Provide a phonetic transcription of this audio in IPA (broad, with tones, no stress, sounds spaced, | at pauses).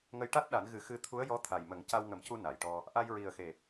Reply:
ŋ ə˧ j ʈ a˦˥ t̚ ɗ a˨˩˦ n ɣ ɨ˨˩˦ x ɨ˧ t̪ʰ u˧˥ ə̯ j ɔ˧˥ t̪ʰ a˨˩ j m ə˨˩˦ ŋ c a˧ w ŋ ə˨˩˦ m c u˧ n a˨˩˨ j ʈ ɔ˧ | ʔ a˧ j ɹ i˨˩ ə̯ x e˨˩ p̚